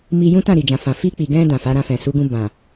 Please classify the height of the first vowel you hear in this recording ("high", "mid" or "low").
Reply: high